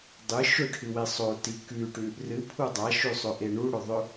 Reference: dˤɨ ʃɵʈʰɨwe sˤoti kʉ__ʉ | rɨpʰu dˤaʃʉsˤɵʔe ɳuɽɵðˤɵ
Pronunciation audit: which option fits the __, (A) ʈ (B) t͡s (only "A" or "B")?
A